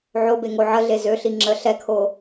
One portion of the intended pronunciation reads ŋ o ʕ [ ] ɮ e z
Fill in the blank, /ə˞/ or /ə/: ə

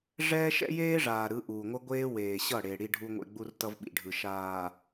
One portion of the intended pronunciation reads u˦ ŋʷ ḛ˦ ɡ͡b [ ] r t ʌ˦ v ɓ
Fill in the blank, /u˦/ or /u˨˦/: u˦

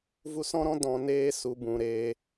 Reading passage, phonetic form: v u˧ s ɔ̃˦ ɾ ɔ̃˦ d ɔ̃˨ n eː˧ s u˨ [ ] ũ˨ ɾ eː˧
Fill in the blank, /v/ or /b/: b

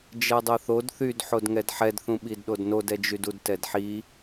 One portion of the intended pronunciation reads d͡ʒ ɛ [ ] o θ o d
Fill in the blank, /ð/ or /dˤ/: dˤ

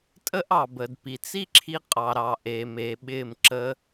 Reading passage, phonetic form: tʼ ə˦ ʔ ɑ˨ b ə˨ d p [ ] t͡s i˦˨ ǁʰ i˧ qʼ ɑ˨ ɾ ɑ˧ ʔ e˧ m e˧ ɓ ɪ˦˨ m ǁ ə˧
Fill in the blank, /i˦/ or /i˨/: i˨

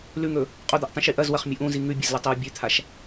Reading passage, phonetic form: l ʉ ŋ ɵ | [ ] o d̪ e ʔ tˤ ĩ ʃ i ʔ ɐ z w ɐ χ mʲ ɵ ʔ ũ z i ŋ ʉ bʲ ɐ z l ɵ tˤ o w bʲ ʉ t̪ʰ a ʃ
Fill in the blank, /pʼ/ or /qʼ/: qʼ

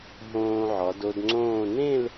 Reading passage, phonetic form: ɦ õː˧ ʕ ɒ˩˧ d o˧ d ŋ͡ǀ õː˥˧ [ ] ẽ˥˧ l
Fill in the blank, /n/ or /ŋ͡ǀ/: n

